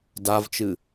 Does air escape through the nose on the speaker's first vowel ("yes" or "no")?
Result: no